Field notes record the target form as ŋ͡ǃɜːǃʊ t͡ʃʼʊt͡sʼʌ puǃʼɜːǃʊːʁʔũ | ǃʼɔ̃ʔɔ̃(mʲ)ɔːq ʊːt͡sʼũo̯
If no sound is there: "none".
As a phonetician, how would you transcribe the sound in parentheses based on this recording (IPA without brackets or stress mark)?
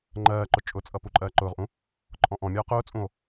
mʲ